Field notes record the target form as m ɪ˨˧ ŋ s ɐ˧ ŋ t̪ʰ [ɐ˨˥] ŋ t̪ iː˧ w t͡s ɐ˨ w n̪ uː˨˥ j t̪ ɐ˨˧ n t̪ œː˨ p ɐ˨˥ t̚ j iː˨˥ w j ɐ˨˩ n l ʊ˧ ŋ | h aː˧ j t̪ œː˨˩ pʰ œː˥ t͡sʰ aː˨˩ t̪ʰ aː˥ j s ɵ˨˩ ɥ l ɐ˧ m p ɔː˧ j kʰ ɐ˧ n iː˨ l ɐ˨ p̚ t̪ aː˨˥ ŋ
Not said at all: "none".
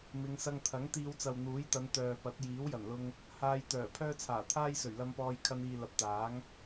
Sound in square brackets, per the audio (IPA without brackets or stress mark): ɐ˨˥